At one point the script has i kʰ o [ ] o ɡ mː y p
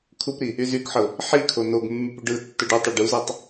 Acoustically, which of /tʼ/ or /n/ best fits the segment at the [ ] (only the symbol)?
n